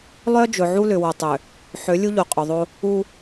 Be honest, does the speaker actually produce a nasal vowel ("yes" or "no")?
no